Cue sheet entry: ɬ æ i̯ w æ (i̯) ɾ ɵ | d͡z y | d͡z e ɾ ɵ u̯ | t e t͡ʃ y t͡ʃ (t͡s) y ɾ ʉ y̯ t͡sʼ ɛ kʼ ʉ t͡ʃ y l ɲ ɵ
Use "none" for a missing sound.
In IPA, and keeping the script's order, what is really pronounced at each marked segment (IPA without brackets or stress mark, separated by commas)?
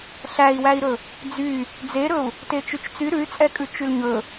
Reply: i̯, t͡s